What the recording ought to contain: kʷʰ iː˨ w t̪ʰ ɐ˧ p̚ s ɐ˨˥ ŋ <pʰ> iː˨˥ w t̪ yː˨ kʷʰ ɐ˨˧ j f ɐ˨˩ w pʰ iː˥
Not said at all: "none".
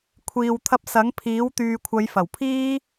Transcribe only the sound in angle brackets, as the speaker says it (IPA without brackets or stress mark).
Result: pʰ